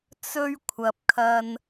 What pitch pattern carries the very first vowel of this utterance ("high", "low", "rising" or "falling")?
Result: high